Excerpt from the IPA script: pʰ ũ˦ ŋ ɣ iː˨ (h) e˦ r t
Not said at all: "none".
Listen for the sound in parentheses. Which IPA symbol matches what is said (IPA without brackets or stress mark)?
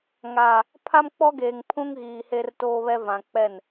h